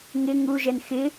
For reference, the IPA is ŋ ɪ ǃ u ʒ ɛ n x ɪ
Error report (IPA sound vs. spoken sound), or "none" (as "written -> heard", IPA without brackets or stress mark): ǃ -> ŋ